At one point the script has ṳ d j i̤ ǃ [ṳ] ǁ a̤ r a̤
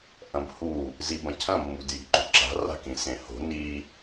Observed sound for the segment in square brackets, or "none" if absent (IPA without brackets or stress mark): ṳ